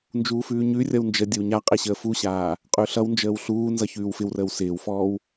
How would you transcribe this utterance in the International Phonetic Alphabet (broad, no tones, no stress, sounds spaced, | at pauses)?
n d͡ʒ uː f ʉː ɲ ʉ rʲ ʌ w n d͡ʒ ə dʲ ə w ɲ a qʼ e ɕ əː f u ɕ aː | qʼ ʉ ɬ ʌ w n d͡ʒ əː w ɬ uː n z ʌ ç ʉː w f ɪ w r əː w s ɪː w f ɔː w